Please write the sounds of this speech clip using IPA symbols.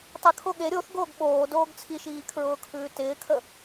tˤ ɪ kʰ o ɠ e ɾʲ o θ ɡ oː ɡ ɓ oː d oː ɡ t͡sʰ i ʃ iː kʰ ɹ ʊː kʰ ʉː t ɪː kʰ ə

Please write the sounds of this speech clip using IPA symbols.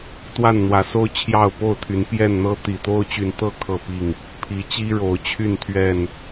t̪ w a˥˨ n n̪ w ä˨˦ s o˦ ʊ̯ t͡ɕʰ j ɑ˥˨ ʊ̯ p o˥˨ ʊ̯ t̪ʰ y˨˦ n p j ɛ˥˨ n n̪ ɤ˦ t̪ i˨˩ t̪ o˦ ʊ̯ t͡ɕ y˨˦ n t̪ ɤ˥˨ kʰ ɤ˥˨ p i˥˨ ŋ | pʰ i˨˦ t͡ɕ i˦ ɻ o˨˦ ʊ̯ t͡ɕʰ y˥˨ n t̪ʰ ɥ ɛ˥˨ n

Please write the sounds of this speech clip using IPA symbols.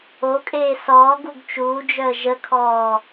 o kʼ eː s ɔː ɡ u ɡ t͡ʃ uː d͡ʒ œ ə̯ ʒ ə kʰ ɔː

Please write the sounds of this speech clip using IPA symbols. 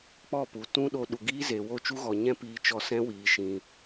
k͡p ɔ˦˨ p u˨ t ũ˦ ɗ o˧ ɗ u˨ ɡ iː˦ z e˨ w o˦˨ t͡ʃ u˦ ɣ ɔ˨ ɲ ɛ̃˦ p iː˧ t͡ʃ ɔ˧ s ɛ̃˦ w iː˨ ʃ ĩ˨

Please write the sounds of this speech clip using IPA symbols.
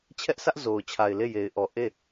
t͡ɕʰ ɛ˦ ʔ s ä˦ ʔ z o˨ ʊ̯ t͡ɕʰ a˨ ɪ̯ l e˦˨ j e˨ ɪ̯ ʔ ɔ˨ ʔ e˦˨

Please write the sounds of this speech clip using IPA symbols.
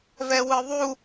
v ɛ w ɯ ðˤ u

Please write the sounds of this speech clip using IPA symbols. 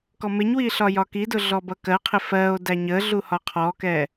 k ɔ m ɪ ɲ w i ɬ ɒ j ɒ k i d ʊ ɮ ɔ b ʌ k ɜ qʰ ɪ f ɜ o̯ d æ ɲ ə ɮ u h ɒ qʰ ɔ k ɛ

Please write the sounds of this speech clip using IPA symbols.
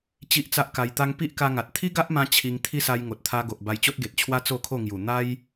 t͡ɕ i˦ ʔ t͡s a˦ ʔ k a˧ j t̪ a˦ ŋ p i˦ ʔ k a˧ ŋ a˨ t̚ t̪ʰ i˦ ɡ a˦ ʔ m ã˧ t͡ɕʰ i˧ ŋ t̪ʰ i˦ s a˧ j ŋ o˨ t̚ t̪ʰ a˧ ɡ o˨ ʔ b a˧ j t͡ɕ o˦ t̚ ɡ e˨ t̚ t͡ɕʰ w a˦ t͡s o˥˧ kʰ o˥˧ ŋ j u˨˩ n̪ a˦ j

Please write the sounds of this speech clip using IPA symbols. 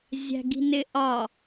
zʲ æ̤ ɡ i̤ n ɪ ʔ ɒ

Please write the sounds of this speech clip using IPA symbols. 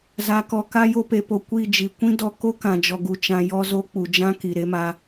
z a˨ k ɔ˨ k a˧ j o˧ p e˨ p o˨ kʷ i˦˨ d͡ʒ i˨ kʷ ĩ˦ d ɔ˦ k o˦ k ã˨ d͡ʒ ɔ˨ ɡ u˨ t͡ʃ ã˧ j ɔ˦ z o˦ k͡p u˨ d͡ʒ ã˦ k i˨ ɾ e˦ m a˧

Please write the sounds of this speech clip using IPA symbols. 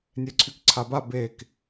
nʲ ɛ ǀʰ y k ǀʰ a b a b e k

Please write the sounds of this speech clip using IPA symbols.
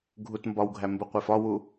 ɡʱ u t m b ɒ w ɡʱ æ m b u qʷ e f ɒ w u

